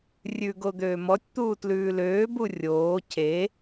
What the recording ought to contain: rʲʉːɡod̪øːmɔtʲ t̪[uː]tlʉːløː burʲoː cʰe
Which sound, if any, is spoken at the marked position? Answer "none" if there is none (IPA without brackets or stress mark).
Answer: uː